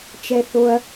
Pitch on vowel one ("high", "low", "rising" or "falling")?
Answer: low